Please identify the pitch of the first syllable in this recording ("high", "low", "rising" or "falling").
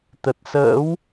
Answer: low